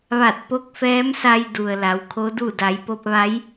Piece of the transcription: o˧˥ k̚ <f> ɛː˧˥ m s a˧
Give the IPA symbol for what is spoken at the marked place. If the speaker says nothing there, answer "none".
f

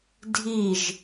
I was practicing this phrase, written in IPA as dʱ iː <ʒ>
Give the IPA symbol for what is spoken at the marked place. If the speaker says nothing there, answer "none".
ʒ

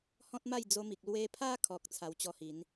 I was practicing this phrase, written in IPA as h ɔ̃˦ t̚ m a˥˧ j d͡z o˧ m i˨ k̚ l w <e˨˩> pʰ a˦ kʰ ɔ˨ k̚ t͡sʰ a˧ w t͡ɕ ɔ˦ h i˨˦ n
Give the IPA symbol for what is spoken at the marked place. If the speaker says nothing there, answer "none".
e˧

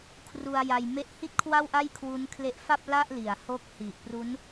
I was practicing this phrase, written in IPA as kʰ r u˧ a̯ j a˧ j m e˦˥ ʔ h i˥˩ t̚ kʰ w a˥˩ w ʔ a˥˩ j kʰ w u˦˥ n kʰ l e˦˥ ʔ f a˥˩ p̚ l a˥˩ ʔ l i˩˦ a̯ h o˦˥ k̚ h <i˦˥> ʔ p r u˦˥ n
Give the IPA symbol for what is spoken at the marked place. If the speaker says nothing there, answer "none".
i˨˩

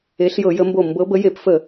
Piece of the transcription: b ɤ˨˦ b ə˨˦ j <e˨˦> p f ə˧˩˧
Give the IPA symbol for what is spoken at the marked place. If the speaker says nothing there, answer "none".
e˧˩˧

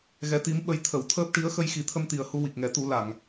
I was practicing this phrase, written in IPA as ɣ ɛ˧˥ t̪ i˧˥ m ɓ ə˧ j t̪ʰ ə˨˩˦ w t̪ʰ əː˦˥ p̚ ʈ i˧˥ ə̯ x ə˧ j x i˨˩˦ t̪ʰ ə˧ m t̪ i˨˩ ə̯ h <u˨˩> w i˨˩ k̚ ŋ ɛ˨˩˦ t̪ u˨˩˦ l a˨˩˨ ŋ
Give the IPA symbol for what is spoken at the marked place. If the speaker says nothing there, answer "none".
u˧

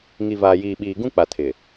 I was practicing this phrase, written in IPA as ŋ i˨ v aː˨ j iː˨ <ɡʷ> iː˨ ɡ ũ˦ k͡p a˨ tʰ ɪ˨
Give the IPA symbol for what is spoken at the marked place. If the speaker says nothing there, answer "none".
ɓ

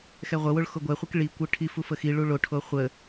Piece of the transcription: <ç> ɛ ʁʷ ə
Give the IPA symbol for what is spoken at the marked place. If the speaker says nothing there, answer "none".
x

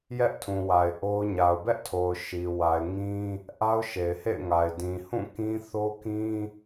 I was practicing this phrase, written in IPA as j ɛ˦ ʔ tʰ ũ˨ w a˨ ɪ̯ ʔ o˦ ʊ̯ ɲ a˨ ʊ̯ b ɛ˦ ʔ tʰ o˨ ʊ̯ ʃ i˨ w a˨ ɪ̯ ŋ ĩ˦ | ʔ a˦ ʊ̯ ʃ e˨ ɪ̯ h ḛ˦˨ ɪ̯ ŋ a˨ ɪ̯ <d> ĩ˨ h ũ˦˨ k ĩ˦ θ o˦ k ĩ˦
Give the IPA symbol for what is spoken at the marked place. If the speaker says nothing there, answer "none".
d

